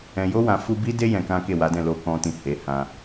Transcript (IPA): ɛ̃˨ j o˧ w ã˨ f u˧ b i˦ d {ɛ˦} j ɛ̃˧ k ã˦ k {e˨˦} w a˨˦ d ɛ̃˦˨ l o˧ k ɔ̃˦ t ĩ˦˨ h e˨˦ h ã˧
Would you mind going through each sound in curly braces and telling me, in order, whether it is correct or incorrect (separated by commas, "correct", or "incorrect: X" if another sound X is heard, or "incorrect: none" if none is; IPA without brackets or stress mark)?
incorrect: e˦, incorrect: e˦˨